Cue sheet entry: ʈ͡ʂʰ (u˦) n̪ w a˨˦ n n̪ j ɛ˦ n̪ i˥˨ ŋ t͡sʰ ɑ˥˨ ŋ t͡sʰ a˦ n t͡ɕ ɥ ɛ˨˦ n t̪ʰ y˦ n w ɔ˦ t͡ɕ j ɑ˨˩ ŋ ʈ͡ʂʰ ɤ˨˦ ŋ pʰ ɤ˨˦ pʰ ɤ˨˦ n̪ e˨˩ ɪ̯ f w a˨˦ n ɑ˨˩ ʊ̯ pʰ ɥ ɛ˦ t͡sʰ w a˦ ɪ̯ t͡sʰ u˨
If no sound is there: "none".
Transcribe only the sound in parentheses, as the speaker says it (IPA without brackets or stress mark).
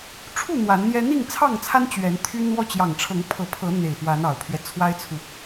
u˥˨